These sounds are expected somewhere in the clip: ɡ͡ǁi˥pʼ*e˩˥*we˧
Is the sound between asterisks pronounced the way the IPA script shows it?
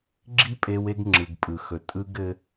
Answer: no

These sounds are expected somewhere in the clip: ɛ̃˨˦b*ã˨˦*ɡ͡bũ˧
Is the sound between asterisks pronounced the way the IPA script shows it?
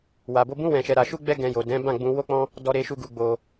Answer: no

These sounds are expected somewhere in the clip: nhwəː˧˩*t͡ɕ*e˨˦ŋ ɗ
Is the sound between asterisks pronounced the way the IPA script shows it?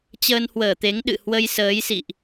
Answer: no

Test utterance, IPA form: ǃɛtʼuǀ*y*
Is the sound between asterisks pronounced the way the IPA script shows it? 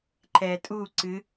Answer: no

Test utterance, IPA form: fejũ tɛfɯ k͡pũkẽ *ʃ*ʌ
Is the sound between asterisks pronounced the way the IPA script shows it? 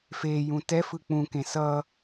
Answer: no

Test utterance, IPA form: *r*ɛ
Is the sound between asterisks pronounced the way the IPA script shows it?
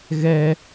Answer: no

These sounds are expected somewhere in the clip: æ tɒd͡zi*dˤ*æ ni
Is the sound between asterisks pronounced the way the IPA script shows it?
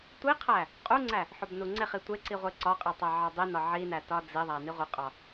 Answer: no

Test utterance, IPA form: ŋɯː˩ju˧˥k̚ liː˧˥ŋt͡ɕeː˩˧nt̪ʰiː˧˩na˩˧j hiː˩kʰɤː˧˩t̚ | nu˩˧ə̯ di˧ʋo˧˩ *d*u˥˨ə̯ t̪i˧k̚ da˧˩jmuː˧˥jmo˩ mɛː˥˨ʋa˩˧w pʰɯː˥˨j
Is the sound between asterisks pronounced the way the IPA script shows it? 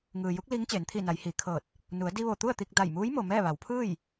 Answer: no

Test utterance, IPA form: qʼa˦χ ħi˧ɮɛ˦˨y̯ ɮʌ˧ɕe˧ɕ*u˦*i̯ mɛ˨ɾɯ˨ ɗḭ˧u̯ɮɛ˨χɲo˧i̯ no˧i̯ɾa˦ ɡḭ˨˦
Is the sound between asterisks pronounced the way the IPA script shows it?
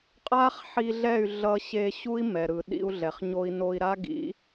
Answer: yes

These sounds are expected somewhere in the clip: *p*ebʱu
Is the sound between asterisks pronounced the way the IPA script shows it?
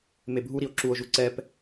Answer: no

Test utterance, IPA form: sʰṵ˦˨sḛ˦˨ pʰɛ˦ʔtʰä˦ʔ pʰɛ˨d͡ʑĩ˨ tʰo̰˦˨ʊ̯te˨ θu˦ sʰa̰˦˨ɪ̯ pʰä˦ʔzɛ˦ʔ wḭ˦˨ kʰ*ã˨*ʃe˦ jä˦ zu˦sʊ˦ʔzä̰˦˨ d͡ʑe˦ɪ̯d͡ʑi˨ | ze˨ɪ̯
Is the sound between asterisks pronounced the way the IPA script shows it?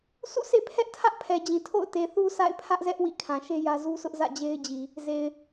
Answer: yes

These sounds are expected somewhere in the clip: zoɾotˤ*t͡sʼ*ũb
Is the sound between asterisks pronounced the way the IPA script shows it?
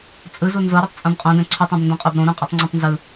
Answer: yes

